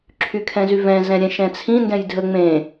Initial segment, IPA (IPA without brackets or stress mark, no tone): ǁʰ